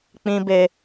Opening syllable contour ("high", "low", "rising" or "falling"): high